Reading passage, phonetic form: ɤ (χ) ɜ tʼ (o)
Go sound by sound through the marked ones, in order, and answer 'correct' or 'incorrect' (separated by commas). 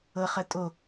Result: correct, correct